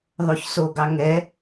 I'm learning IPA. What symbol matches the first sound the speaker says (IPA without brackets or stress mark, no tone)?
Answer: ðˤ